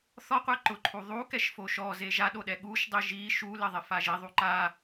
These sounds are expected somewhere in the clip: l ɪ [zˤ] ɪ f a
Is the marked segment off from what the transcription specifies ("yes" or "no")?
yes